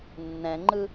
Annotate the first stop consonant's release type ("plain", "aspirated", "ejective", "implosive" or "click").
click